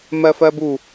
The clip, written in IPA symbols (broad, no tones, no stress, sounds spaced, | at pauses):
m ɜ f ɜ b u